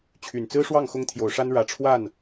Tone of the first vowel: low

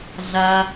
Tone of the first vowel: high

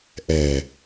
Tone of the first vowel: low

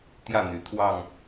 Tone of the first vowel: falling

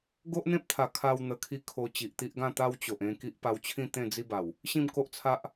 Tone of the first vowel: high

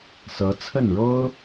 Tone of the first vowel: rising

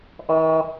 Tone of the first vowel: low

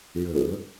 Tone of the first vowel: low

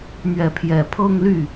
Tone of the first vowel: rising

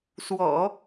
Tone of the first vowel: low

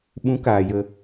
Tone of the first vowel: rising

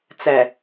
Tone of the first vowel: low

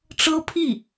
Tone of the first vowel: high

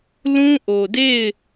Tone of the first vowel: high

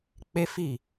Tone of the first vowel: high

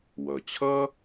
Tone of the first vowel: low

